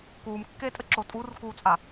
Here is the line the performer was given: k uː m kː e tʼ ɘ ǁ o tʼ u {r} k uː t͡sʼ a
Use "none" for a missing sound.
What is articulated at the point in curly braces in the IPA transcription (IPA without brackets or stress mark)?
r